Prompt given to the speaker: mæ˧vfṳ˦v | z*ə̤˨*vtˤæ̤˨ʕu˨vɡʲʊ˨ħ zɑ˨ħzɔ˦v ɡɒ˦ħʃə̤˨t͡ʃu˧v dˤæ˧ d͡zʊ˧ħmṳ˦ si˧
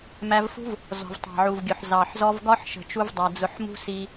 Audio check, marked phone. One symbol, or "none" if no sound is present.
ɔ̤˨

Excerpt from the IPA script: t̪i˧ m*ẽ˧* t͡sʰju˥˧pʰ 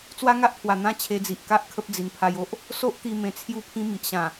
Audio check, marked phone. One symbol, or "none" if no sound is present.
ẽ˧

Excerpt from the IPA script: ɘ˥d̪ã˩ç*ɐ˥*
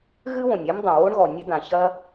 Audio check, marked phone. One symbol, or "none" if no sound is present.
ɐ˥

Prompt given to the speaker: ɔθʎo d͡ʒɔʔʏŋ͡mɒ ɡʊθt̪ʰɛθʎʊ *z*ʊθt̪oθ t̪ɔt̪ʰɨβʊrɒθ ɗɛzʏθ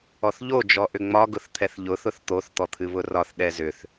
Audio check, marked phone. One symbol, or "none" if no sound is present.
θ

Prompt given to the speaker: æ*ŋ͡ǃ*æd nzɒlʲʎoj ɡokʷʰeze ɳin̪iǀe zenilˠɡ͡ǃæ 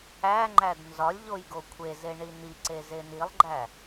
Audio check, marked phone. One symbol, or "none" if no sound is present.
ŋ͡ǃ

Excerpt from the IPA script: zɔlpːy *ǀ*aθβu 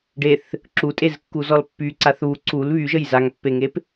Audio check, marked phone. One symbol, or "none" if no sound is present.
ǀ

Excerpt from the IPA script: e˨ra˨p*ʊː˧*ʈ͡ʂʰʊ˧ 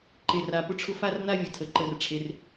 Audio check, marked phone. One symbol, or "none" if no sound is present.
ʊ˧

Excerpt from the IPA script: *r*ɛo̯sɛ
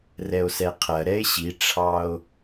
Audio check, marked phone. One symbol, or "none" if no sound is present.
r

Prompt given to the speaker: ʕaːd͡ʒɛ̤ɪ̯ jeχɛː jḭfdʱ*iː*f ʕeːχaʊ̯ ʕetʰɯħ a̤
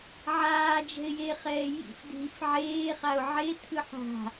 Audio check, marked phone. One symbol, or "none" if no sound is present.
i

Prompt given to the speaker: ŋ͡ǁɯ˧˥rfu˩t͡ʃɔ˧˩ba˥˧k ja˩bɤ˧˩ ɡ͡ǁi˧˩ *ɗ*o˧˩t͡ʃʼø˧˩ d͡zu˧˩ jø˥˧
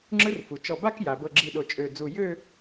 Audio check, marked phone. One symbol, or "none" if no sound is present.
ɗ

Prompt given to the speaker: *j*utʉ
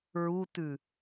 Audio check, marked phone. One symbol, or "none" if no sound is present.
ɹ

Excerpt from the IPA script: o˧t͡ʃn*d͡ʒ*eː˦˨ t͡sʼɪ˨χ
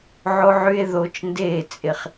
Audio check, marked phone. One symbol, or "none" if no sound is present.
d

